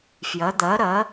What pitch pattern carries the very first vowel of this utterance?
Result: rising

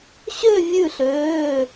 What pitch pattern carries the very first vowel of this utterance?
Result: falling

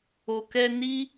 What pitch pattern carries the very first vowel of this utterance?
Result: low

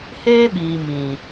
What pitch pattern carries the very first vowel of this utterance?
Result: high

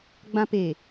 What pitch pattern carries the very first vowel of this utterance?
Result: high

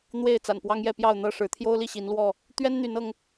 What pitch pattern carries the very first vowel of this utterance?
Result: falling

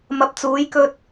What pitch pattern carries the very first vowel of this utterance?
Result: low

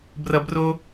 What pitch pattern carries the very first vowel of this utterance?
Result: low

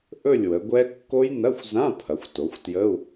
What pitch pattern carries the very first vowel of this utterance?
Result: falling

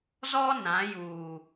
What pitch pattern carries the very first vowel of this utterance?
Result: high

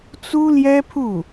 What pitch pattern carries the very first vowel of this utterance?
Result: high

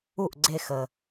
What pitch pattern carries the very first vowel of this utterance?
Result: falling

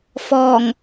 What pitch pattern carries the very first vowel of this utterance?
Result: low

